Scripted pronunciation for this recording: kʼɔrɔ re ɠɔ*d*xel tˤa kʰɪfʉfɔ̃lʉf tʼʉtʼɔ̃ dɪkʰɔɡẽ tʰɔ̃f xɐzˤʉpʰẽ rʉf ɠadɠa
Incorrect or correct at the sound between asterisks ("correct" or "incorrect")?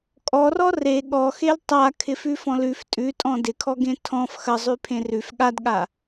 incorrect